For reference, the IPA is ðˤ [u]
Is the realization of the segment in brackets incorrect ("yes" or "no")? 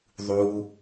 no